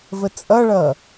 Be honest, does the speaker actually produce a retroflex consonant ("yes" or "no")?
yes